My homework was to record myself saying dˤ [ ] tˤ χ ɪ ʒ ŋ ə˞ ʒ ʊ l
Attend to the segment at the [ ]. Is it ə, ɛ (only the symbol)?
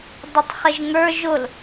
ə